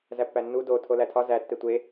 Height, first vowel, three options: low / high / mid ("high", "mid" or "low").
low